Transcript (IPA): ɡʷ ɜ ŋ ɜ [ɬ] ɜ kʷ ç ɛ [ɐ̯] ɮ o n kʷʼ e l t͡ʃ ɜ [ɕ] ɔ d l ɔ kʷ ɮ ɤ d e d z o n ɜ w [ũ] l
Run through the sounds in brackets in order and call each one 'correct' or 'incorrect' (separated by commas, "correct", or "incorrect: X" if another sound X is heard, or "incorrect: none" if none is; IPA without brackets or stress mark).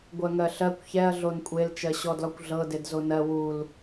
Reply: correct, correct, correct, incorrect: u